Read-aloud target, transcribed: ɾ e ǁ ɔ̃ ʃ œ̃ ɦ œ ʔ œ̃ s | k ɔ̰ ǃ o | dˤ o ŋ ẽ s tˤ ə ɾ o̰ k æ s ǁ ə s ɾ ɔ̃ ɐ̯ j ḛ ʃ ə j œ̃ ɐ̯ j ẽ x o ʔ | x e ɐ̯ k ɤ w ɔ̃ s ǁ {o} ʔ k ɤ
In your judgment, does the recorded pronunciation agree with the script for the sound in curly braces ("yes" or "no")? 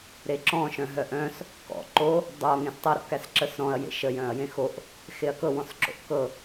no